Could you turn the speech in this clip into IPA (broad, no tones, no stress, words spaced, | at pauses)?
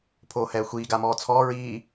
pʰoːhɛːxʷiː ɡamɔːt͡sʰɔː ɹiː